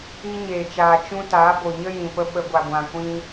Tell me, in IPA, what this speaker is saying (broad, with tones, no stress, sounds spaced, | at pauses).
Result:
i˧ ɲ eː˨ t͡ʃ aː˨ t͡ʃ ũ˧ t aː˨˦ b o˨ ɲ ə˦ j ĩ˨ p ə˧ ɓ ə˧ ɡʷ a˨ ɡʷ ã˨ kʷ ĩ˧